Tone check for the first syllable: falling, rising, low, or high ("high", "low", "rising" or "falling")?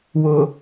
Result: low